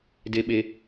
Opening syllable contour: low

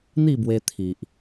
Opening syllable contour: falling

